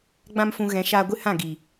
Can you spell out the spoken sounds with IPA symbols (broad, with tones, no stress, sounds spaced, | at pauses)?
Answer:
ɡ͡b ã˦ m f ũ˧ ɣ ɛ̃˨˦ ʃ aː˧ ɡʷ ɨ˦ h ã˦˨ ɡ iː˨